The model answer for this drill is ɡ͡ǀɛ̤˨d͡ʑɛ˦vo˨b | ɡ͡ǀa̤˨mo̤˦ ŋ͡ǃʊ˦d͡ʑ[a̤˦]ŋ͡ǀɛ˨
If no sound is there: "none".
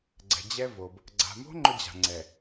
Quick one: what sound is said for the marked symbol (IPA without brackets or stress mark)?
a̤˨